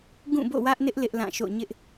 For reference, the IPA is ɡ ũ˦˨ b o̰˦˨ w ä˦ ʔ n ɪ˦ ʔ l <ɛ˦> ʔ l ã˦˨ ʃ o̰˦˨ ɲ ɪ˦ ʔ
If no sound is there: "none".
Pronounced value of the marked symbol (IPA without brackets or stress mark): ɪ˦